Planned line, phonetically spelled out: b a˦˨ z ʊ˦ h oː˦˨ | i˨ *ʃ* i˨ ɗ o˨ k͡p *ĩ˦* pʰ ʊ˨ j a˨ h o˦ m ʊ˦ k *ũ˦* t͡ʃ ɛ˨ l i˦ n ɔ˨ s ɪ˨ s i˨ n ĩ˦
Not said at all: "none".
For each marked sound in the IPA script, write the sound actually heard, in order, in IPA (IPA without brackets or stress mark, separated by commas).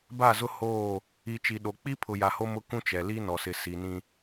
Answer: t͡ʃ, i˦, ũ˦